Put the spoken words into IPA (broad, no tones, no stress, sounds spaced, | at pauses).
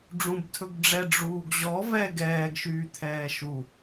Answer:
ɖ͡ʐ ũ b tʰ ɵ ɡ ɖ͡ʐ ɛ ɖ͡ʐ uː ɡ ʑ ɔ v ɛ ɡ ɛː ɡ ʃ yː t̪ʰ ɛː ʃ u